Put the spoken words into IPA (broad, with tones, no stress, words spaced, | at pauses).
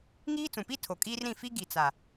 ŋiː˦t͡sũ˨pi˦ tʰo˨kʼiː˦rɾĩ˦˨ fi˦ ɡi˨t͡sa˨